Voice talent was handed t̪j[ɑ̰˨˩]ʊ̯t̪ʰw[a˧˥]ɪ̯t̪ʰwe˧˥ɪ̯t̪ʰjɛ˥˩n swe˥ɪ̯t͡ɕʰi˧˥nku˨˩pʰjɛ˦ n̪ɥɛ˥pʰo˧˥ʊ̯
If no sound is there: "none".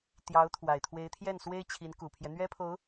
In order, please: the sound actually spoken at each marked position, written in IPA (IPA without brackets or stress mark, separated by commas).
ɑ˧˥, a˨˩